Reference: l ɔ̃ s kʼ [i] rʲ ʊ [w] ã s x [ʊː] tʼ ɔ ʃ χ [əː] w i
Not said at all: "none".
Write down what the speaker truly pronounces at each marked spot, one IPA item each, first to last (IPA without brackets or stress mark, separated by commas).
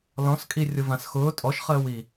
i, v, ʊː, əː